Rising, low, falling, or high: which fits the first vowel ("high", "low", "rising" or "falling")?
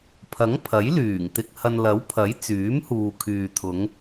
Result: rising